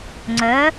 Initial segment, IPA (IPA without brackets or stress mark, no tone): ŋ͡ǀ